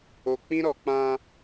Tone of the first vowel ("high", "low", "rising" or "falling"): low